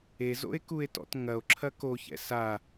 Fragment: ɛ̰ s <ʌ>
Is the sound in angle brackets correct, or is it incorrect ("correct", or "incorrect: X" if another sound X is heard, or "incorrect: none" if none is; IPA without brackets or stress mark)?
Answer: incorrect: a